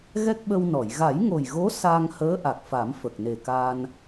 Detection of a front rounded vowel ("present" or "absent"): absent